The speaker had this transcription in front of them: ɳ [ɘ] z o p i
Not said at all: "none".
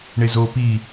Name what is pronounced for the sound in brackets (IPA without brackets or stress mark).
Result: e